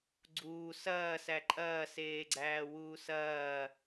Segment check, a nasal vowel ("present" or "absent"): absent